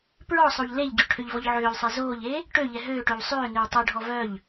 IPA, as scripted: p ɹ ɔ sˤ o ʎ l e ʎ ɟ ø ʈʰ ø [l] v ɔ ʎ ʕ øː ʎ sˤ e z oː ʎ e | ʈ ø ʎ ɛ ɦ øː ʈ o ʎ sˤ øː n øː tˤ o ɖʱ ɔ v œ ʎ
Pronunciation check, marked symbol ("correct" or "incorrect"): incorrect